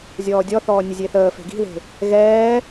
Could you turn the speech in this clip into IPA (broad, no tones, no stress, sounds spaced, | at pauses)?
zʲ ɔː dʲ ɔ θ ɔː nʲ ə zʲ e θ əː f e̤ ɡ i̤ ð e̤ | ɣ ɛː